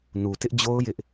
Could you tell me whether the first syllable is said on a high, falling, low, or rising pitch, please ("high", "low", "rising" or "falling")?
low